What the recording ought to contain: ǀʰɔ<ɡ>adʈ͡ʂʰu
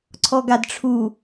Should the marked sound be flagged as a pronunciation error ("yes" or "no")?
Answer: no